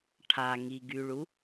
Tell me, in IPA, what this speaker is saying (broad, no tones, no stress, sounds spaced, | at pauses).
ʈʰ a ŋ i ɡ y ɭ u